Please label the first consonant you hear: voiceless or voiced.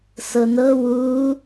voiceless